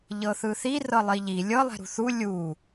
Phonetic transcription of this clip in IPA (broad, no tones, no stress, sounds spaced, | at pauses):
ʎ ɤ θ ɯ θ i r ɤ lˠ i ʎ i lʲ ɤ lˠ ɛ̤ ɾ ṳ θ u lʲ u